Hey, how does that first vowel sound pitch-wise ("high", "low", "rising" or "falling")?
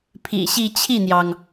low